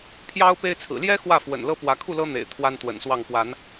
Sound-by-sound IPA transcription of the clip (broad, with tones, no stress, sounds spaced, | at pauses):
pʰ j ɑ˦ ʊ̯ p e˦ ɪ̯ t͡sʰ ɹ̩˨˩ l j ɛ˦ x w ä˥˨ f w ə̰˨˩ n l ɤ˦ p w ä˨˦ kʰ u˥˨ l ɤ˦ n̪ ḛ˨˩ ɪ̯ t̪ʰ w a˦ n t̪ w ə̰˨˩ n s w ɑ˥˨ ŋ p w a˨˦ n